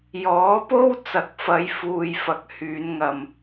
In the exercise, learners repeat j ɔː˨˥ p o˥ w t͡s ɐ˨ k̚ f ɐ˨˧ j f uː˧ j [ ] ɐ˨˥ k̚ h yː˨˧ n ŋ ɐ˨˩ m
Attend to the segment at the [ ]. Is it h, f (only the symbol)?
f